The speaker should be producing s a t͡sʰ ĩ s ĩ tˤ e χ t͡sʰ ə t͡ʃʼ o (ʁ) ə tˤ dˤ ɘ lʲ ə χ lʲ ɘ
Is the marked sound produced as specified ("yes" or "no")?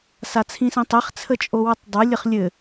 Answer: no